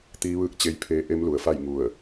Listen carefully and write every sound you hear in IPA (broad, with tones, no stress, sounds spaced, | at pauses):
t̪ iː˧˥ ʋ ɯː˥˨ k̚ t͡ɕ e˧˥ j pʰ eː˧˥ ʔ e˧˥ m l u˩ ə̯ f a˥˨ j ŋ u˧˩ ə̯